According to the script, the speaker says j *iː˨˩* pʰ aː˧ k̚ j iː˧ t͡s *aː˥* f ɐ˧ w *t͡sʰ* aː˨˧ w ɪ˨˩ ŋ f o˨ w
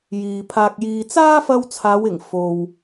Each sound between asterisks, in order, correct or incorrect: incorrect: iː˨, correct, correct

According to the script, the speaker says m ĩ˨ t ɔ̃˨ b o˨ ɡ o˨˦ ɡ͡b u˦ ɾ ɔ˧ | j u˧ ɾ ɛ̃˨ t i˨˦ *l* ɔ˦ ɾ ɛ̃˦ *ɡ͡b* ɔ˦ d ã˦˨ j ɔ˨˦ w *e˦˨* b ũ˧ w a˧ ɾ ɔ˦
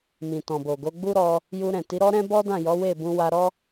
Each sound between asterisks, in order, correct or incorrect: incorrect: ɾ, incorrect: b, correct

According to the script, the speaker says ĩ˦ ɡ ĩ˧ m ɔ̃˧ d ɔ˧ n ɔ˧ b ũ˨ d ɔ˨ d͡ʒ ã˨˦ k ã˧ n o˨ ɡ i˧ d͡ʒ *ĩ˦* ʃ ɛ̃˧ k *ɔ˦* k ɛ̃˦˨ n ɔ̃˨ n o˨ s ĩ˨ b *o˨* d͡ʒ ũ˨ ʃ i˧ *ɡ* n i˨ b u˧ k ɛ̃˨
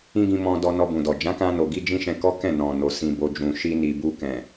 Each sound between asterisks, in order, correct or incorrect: correct, correct, correct, incorrect: none

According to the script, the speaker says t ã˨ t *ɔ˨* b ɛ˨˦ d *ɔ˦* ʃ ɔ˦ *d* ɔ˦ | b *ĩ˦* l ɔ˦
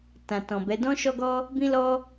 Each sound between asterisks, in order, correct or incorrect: incorrect: ɔ̃˨, incorrect: ɔ̃˦, incorrect: ɡ, correct

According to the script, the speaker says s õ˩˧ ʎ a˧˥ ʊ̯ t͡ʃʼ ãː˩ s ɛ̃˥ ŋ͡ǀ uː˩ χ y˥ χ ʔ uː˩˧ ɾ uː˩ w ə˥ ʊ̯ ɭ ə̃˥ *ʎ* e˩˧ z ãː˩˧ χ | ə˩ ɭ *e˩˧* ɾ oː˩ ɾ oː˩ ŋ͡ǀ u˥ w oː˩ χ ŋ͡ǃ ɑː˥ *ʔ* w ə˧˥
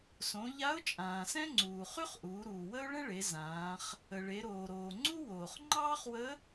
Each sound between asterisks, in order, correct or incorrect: incorrect: ɭ, correct, incorrect: χ

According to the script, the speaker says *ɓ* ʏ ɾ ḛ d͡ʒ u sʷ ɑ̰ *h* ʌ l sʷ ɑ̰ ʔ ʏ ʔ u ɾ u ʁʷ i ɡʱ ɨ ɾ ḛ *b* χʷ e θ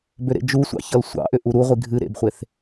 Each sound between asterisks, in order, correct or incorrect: incorrect: b, incorrect: ç, correct

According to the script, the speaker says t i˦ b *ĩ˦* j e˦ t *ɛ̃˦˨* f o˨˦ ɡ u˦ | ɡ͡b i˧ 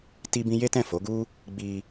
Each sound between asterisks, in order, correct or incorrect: correct, correct

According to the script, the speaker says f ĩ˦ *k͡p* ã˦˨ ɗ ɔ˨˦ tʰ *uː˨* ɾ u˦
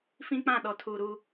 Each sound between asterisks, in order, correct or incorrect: correct, correct

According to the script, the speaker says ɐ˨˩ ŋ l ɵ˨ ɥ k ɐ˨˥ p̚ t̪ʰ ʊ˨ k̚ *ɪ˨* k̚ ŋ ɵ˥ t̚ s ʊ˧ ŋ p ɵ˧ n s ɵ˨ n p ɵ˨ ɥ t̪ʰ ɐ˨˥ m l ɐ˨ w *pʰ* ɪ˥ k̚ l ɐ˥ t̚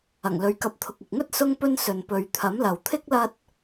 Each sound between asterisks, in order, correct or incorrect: correct, incorrect: t̪ʰ

